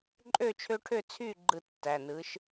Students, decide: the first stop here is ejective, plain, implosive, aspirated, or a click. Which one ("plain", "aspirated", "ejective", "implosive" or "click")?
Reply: click